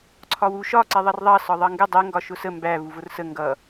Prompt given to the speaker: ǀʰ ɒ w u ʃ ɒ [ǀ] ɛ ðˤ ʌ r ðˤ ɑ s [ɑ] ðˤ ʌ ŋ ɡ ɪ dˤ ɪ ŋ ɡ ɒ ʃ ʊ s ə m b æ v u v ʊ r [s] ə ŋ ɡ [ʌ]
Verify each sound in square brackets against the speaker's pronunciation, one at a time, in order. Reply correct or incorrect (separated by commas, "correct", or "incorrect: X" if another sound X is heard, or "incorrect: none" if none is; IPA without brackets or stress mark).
correct, incorrect: ɒ, correct, correct